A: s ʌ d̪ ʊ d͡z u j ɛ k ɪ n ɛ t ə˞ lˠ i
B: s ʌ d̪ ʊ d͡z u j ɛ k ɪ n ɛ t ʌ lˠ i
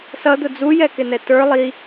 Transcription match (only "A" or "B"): A